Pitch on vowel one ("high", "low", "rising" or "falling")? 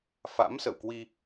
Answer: rising